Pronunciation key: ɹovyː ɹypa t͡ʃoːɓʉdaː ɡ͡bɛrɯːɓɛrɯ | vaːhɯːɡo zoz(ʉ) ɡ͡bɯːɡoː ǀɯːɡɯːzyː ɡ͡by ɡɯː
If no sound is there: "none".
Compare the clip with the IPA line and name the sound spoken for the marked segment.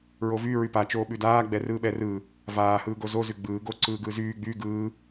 ʉ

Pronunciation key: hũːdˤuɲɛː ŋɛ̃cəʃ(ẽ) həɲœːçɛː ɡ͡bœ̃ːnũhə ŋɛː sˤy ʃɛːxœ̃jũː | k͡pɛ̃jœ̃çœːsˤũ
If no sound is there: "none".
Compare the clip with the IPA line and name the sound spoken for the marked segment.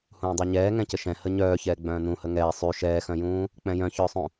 ɛ̃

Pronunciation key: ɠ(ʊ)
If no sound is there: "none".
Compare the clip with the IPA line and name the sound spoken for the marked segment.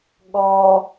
ɔ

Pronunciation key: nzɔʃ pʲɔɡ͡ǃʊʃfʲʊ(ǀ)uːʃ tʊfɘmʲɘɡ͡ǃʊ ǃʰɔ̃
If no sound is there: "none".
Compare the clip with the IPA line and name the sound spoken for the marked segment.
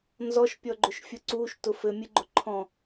ǀ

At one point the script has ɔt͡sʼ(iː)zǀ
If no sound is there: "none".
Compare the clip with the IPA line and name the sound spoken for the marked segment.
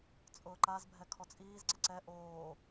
iː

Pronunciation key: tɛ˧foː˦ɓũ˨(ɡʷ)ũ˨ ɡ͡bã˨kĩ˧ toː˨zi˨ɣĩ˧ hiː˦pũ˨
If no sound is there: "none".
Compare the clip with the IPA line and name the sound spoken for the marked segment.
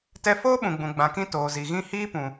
ɡ͡b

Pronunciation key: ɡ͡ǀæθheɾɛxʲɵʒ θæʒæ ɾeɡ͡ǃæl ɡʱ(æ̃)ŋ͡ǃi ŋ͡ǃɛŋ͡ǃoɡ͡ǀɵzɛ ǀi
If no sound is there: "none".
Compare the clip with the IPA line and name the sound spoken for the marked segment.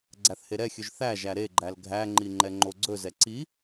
æ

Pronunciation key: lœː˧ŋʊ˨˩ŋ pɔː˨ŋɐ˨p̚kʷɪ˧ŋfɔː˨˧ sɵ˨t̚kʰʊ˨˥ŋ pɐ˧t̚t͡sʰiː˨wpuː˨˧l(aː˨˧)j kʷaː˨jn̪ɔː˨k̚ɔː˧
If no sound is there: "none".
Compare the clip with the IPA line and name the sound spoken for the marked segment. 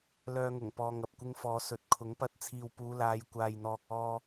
aː˨˧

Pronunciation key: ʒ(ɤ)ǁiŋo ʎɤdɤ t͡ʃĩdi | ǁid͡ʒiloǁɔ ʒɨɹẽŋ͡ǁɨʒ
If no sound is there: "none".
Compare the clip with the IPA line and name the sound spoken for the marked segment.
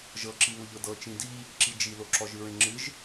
ɤ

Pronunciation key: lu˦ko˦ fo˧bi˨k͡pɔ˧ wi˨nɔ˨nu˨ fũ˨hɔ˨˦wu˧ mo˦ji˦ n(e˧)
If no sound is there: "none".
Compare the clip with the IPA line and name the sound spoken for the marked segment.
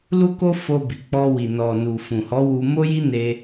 e˧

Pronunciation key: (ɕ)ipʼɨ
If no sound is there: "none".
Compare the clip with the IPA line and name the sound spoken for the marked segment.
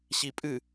ɕ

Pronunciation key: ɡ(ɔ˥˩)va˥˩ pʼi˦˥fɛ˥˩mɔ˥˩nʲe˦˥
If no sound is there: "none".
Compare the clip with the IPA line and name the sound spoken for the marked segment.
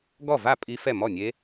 ɔ˥˩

